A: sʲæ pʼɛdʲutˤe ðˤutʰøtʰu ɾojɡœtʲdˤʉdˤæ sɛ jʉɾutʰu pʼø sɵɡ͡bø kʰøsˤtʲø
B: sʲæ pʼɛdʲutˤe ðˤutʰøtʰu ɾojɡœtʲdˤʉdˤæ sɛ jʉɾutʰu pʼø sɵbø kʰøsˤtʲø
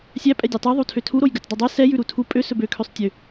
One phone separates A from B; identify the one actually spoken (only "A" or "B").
B